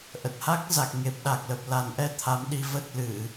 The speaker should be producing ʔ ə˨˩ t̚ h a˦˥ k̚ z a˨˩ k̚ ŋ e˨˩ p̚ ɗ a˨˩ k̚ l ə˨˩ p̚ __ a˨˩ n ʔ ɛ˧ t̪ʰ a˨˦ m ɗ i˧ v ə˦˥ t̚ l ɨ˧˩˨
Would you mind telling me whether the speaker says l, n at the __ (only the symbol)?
l